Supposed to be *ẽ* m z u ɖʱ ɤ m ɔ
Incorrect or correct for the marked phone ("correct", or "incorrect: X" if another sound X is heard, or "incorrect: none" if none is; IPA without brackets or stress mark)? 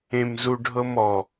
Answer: correct